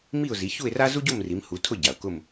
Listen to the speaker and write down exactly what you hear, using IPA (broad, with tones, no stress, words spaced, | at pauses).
mi˥˧ʊ̯zi˨˦çu˥˧ɪ̯ra˥ zu˥ɟo˥˧m ri˨˦mhu˨˦ tʰʊ˥˧ɟa˩ʊ̯kʊ˥˧m